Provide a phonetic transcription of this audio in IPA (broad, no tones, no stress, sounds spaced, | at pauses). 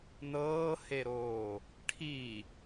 n ɤː h e ɾ oː | ʈʰ i